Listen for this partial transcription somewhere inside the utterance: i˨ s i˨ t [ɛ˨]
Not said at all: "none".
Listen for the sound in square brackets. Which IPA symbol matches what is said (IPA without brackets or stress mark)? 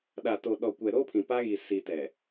ɛ˨